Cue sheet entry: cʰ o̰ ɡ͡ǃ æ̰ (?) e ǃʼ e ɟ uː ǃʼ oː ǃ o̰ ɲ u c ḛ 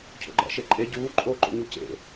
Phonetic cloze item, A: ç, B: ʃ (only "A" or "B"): B